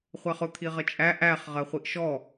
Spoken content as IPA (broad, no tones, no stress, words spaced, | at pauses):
χʷæχʊ t̪ʰiʁət͡ʃʼæ ʔæχ ʁɜχʷiʔʃɔ